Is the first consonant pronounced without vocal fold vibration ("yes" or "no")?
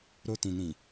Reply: no